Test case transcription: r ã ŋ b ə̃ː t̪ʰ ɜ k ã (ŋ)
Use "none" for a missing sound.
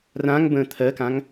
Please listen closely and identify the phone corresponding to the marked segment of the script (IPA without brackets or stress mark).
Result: ŋ